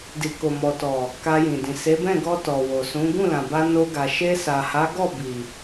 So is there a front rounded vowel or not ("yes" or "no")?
no